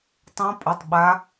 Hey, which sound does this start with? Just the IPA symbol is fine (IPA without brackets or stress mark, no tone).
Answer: tˤ